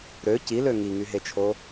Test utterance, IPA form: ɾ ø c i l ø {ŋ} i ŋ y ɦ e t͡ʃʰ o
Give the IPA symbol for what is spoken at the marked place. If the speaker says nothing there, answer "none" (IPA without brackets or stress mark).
ŋ